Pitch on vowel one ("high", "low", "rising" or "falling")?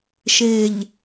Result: low